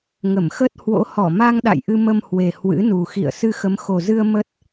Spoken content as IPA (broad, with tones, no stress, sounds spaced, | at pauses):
ŋ ə˧˩ m x ə˦˥ t̚ h w o̰˧˥ h ɔ˧˩ m a˧ ŋ ɗ a̰˧˨ j ʔ ɨ˧ m ə˧ m h w e˨˩ h w ɨ̰˧˥ n u˨˩ x ḭ˧˨ ə̯ s ɨ˧ x ə˨˦ m x o˨˩ z ɨ˧ ə̯ m ə˦˥ t̚